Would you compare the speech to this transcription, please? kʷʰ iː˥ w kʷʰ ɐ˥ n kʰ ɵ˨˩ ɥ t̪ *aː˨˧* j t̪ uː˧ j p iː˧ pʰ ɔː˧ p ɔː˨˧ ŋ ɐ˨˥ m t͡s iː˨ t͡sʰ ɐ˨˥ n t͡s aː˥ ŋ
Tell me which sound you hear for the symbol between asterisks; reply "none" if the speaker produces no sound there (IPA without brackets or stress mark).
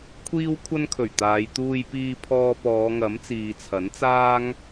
aː˨˧